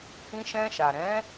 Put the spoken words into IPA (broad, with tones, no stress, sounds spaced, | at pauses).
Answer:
h ĩ˧ ʃ ɛ̃˧ ʃ a˨ ɾ ɛ̃˨˦